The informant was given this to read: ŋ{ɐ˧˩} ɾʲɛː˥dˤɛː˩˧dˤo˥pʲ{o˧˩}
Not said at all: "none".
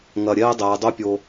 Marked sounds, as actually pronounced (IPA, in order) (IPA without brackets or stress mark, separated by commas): ɐ˧˩, o˧